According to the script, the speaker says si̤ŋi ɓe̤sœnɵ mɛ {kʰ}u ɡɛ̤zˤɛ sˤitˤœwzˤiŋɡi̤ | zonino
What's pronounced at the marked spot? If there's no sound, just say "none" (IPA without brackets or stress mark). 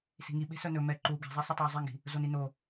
ǃ